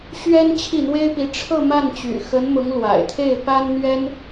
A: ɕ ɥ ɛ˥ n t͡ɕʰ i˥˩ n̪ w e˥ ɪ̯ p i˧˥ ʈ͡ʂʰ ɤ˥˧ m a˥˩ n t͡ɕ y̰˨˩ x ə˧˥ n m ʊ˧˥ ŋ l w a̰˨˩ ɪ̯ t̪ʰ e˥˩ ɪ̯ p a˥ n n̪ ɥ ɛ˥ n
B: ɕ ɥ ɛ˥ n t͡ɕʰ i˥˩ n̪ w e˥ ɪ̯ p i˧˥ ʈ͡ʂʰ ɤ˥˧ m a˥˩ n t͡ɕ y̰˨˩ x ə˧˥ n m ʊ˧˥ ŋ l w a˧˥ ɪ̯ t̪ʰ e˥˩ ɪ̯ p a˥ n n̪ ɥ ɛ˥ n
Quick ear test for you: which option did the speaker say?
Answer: A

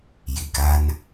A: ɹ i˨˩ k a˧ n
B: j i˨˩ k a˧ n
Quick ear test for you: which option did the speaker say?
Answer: B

